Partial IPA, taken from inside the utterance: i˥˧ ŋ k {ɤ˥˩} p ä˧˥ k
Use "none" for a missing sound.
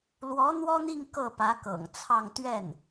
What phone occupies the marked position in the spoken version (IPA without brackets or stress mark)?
ɤ˥˩